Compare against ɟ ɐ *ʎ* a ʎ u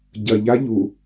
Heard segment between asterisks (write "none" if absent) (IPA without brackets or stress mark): ʎ